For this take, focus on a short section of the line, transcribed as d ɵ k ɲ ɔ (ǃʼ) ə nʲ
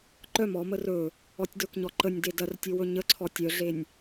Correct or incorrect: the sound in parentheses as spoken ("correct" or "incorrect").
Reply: incorrect